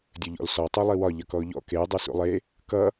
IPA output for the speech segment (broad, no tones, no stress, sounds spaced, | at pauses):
dʲ ɵ ʎ ɔ̰ l s ɔ tˤ u lˠ i w ɒ ʎ ʌ k ɔ ʊ̯ ʎ ɔ̰ k e dˤ u s ṵ lˠ e | k ʌ